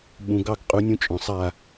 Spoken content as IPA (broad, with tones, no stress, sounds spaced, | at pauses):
ɓ ũ˩ ɡ ɑ˥˩ ɡ qʼ u˩˥ nʲ ũ˧ t͡ʃʼ ɔ̃˩ sˤ a˥˩